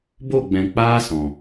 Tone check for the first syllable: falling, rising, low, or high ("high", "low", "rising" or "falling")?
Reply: falling